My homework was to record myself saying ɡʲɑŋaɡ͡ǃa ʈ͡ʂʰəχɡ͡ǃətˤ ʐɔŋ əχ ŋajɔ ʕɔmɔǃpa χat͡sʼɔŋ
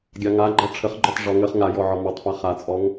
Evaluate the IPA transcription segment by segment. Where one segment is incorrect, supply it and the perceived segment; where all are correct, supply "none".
ǃ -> tˤ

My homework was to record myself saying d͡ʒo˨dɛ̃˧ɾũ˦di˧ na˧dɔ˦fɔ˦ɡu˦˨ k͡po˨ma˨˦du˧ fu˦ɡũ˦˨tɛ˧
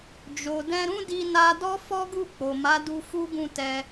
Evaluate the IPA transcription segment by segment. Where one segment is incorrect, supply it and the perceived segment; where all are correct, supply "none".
none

